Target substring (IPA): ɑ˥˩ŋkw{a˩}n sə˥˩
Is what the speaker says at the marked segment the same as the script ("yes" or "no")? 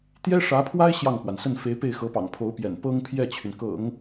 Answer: yes